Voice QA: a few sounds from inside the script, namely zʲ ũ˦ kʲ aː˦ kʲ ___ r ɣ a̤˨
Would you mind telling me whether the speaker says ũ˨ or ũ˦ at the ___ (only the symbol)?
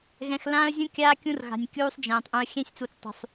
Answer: ũ˦